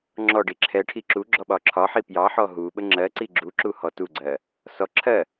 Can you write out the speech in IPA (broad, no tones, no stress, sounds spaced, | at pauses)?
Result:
ŋ͡ǁ ɔ ɖ i ǁʰ ɛ ʈʰ i ǁ u ɡ͡ǁ ɔ ɓ ɒ ǁʰ ɒ ħ i p j ɑ ħ ɔ ɦ u ɓ ə ŋ͡ǁ ɜ ǀ i ɡ͡ǁ u ǁ u h ɔ t u ɡ͡ǀ ɜ | s ɔ ǁʰ ɜ